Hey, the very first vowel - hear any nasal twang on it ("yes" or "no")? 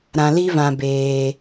yes